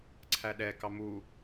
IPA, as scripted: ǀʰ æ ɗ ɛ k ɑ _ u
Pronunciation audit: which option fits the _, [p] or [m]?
m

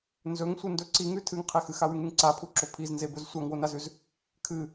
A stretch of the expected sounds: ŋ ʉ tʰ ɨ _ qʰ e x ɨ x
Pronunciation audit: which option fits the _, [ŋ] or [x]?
ŋ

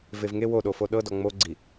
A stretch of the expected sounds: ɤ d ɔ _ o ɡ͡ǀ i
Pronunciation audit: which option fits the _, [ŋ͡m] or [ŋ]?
ŋ͡m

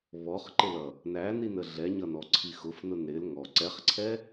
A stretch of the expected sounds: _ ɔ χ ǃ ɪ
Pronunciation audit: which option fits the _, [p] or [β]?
β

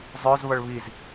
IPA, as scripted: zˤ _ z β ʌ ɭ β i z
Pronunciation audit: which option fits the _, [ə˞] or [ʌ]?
ə˞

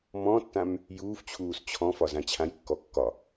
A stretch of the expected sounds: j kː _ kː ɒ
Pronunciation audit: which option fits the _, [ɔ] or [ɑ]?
ɔ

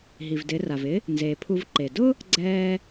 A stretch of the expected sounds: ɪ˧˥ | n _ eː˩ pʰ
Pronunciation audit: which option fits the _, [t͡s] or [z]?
z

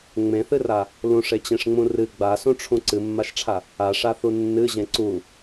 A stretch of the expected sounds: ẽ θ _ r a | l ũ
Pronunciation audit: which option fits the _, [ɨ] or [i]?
ɨ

